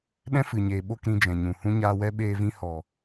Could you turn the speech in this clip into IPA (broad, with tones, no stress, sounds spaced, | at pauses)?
ɗ ɛ̃˦ f ɨ˨ ɲ eː˨ ɓ o˦˨ k ɾ ĩ˧ d͡ʒ ɛ̃˨ ɲ ũ˨ h ũ˦ ɲ aː˧ w ɛ˦ ɓ eː˧ v ĩ˧ h ɔ˨